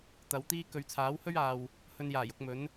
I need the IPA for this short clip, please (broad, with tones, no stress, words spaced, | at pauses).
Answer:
t̪ɐ˨˧wt̪iː˥ kɵ˨˧ɥt͡sʰaː˨˥whɵ˥ɥaː˨w | hɵ˧njaː˨˩jʊ˧k̚mɵ˨˥n